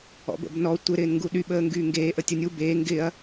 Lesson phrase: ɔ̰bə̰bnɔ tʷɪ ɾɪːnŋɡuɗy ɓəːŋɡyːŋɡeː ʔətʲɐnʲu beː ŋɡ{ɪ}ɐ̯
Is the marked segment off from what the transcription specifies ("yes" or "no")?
no